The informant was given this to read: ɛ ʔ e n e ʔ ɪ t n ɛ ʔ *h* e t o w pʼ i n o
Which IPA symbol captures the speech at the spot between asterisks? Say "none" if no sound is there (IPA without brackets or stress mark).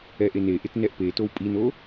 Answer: p